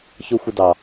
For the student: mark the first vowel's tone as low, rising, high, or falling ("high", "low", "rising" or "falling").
high